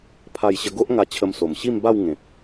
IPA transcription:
pʰ a˥˧ j ɕ ə˦ ɡ o˦ ʔ ŋ a˧ t͡ɕʰ ə˧ m s o˨˩ m ɕ i˥˧ m b a˥˧ w ŋ ẽ˨ p̚

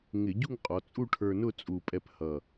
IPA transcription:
ŋ ɪ˧˩˧ ɟ u˥˧ ŋ qʼ ɔ˩˧ t͡sʼ u˥˧ ʈʰ ə˞˧ n ʊ˥˧ t͡sʼ u˨˩ pʼ ɛ˧ p h ʌ˨˩

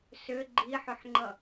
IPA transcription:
s ʏ ɡ͡ǃ i ħ ʏ ħ ŋ͡ǃ ʌ

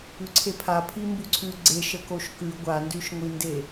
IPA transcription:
ʉ ǀʰ e pʰ a pʰ i m b ʉ ǀʰ ʉ ɡ͡ǀ e ʃ ə k o ʃ k ʉ ɡʷ a n d ʉ ʃ ŋʷ i n d e

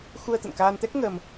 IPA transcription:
x u˧ ə̯ t̪ ə̰˧˨ n k aː˧ n t̪ ɛ˦˥ k̚ ŋ əː˧ m

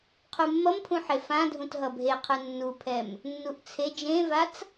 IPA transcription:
qʰ u mː ʌ m pʰ ũ ħ e f ã dʱ ũ t ɦ ʌ bʱ e qʰ ɯ nː u pʰ ɛ m | nː u ʔ t͡sʰ e d͡ʒ ẽ v a t͡s

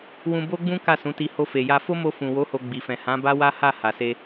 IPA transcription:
w ũ˧ b o˦ ɡ͡b ũ˦ k a˦˨ s ũ˨˦ t i˧ h o˧ f e˨ j a˧ f o˦ m o˧ f ũ˨ w o˨˦ h o˧ ɡ͡b i˨ f ɛ̃˨ h ã˨˦ b a˦ w a˦ h a˦˨ h a˨ s e˧

